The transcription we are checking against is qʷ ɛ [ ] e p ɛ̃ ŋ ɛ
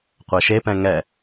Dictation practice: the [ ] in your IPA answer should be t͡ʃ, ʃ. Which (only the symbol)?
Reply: ʃ